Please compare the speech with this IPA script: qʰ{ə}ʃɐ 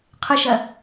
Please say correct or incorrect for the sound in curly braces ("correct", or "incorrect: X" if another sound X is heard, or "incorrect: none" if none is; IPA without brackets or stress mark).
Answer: correct